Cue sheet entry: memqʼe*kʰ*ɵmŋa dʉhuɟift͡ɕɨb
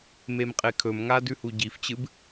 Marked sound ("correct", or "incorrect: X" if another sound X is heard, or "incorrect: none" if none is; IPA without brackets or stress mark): correct